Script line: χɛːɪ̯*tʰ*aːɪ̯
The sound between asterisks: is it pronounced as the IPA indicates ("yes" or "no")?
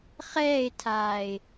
yes